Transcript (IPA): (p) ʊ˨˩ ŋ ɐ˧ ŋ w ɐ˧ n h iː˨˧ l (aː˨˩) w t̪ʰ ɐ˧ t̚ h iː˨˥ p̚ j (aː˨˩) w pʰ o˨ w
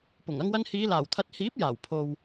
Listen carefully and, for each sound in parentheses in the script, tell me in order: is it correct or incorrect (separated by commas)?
correct, correct, correct